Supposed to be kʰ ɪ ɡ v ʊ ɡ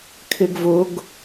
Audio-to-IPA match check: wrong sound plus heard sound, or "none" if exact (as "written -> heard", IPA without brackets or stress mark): none